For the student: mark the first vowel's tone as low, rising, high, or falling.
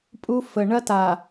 high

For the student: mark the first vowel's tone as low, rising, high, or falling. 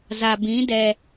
low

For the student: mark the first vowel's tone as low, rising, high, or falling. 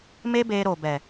high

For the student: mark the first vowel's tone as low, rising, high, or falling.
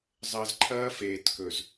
low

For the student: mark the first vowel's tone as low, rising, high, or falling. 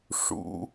rising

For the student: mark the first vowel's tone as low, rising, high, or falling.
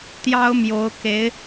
high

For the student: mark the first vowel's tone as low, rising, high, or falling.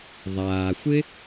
low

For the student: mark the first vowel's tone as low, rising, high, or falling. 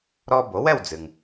high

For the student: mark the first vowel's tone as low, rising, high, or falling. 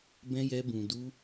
high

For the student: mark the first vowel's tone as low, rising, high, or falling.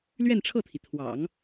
falling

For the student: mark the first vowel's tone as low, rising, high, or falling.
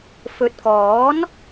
rising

